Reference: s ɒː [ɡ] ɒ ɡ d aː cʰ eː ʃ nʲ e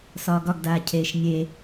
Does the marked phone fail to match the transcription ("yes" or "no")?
no